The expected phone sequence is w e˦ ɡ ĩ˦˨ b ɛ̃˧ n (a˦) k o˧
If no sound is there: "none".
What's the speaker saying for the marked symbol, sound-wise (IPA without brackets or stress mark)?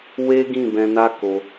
a˦